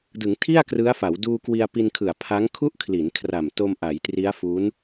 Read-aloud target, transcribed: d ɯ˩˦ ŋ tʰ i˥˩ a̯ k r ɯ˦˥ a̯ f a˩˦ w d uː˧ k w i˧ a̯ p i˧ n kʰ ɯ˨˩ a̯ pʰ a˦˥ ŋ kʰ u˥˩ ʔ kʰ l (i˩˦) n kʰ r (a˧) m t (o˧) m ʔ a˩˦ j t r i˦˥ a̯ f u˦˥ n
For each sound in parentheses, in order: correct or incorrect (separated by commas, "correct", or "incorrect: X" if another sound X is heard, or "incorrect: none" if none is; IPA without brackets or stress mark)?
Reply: correct, incorrect: a˨˩, correct